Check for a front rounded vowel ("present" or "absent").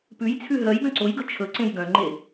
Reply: present